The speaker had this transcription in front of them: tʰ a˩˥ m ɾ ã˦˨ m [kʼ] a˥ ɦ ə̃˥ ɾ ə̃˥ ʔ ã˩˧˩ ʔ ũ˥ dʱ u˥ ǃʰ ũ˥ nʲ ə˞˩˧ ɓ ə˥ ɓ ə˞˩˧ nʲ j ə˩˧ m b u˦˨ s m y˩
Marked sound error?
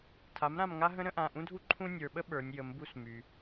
yes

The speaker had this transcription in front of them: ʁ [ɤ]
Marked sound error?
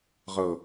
no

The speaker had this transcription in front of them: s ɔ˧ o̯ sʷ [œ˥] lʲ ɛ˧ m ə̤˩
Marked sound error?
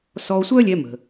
no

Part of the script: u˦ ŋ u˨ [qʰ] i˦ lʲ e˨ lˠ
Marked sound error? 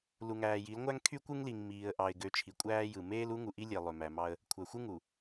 yes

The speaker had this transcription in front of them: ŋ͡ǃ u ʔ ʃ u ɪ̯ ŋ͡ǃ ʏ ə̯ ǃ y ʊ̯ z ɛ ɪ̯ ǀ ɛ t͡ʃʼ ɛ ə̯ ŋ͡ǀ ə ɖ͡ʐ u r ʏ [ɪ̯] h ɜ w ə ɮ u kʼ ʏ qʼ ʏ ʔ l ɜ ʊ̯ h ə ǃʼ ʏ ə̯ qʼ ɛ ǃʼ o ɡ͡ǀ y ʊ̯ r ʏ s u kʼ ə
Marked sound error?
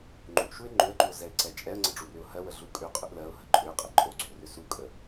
yes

